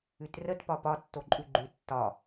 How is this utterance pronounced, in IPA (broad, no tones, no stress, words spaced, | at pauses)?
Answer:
ʉtrət pɒpɒ tːoǃʼʉɡ͡ǃʉ tːɒ